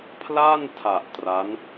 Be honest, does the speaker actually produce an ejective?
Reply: no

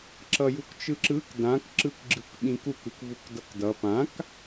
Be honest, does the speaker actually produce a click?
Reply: yes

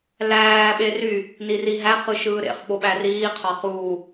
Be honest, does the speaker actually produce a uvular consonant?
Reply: yes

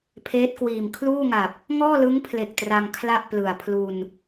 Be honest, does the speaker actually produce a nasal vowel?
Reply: no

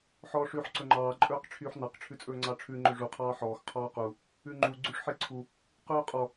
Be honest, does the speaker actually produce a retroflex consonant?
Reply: yes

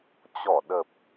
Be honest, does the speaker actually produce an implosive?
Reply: yes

